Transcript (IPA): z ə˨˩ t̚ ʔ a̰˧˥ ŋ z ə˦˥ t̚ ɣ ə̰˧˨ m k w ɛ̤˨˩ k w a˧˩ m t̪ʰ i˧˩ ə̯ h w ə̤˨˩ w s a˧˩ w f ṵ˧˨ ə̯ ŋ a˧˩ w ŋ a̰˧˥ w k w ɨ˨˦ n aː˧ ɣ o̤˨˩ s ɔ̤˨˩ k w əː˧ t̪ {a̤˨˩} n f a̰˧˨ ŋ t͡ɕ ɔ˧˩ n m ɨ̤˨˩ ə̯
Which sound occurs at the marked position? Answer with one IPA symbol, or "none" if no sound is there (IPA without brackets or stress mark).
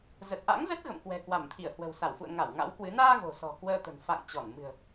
ə̤˨˩